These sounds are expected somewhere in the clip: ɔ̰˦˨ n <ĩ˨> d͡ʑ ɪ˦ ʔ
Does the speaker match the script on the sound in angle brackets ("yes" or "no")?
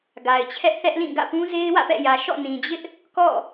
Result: yes